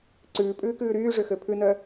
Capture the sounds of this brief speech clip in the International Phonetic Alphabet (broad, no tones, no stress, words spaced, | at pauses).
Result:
ǀʉːpʼʉːkʉː ɾyːʐøxø pʰʉnœ